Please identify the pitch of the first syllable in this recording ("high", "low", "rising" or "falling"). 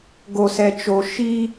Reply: low